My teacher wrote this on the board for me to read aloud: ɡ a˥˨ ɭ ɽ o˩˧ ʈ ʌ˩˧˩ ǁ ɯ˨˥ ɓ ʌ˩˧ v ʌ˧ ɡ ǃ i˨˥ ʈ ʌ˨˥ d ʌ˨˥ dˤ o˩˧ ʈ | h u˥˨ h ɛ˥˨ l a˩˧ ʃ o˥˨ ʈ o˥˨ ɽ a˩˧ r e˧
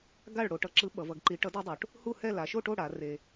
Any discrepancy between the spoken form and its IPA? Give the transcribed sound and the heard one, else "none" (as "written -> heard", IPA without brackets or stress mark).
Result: none